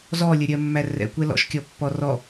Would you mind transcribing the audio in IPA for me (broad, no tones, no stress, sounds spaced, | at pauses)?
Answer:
z ɔ lʲ ə ɾʲ ɜ mː æ r ɛ̰ kʷ ɛ l ɔ̰ ʃ kʲ ɔ pː ɔ r ɔ